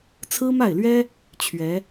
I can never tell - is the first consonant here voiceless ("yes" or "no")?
yes